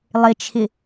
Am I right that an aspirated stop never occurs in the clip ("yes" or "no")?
no